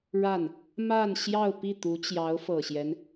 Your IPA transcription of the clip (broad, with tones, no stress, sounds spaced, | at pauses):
ɻ a˥˩ n | m a˥˧ n ɕ j ɑ˥˧ ʊ̯ p i˥˩ t̪ u˧˥ t͡ɕ j ɑ˧˥ ʊ̯ f ɤ˨˩ ɕ j ɛ˦ n